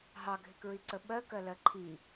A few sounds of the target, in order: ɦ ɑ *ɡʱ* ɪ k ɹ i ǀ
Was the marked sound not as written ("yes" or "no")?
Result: no